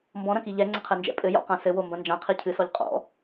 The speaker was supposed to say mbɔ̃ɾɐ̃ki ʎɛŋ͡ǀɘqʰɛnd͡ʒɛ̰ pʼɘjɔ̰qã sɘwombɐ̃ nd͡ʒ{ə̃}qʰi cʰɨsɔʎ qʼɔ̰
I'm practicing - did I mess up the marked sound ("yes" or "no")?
yes